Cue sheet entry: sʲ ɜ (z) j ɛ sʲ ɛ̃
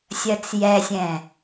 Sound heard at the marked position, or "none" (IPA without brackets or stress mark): t͡s